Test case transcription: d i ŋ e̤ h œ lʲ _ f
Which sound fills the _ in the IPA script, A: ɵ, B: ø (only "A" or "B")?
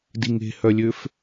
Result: B